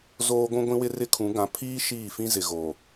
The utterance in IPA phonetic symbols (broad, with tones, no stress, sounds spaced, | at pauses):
z oː˦ ɡʷ ũ˦ ɡʷ ĩ˦ w ɪ˦ r ɪ˦ kʰ ũ˨˦ ɡ ã˨˦ pʰ iː˦ ʃ iː˦˨ f ĩ˦ z ɪ˨ ɣ o˨